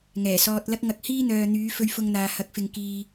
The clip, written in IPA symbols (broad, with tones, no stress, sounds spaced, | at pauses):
ŋ ɛː˨˩ s ɔː˧ t̚ l ɐ˥ k̚ ŋ ɐ˧ k̚ h iː˥ n̪ œː˨ n̪ yː˨˧ f ɵ˧ ɥ f ʊ˧ ŋ n̪ aː˨ h ɐ˨˥ k̚ f ɪ˨ ŋ k iː˨